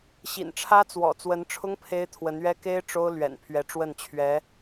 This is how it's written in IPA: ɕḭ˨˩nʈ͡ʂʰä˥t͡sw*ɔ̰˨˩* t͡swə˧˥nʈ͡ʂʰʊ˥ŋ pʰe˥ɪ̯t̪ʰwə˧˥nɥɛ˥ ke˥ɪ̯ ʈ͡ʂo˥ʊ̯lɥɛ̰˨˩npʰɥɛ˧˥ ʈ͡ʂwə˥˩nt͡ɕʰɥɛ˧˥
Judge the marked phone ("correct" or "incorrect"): correct